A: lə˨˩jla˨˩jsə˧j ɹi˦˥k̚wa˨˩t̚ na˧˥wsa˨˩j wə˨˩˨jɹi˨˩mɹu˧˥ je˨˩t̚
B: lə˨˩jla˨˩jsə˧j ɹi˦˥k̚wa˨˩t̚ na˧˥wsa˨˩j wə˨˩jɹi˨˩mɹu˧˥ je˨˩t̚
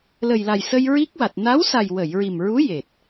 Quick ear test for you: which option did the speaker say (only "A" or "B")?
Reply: A